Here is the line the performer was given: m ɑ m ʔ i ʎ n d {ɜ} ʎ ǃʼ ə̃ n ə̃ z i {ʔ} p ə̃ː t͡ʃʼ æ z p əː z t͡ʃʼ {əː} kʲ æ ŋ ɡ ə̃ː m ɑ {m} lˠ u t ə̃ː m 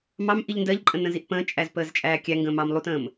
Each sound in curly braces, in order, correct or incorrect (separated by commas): correct, correct, incorrect, correct